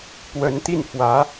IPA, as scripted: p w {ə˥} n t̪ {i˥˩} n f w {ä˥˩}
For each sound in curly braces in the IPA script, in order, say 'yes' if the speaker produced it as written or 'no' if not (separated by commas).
no, yes, no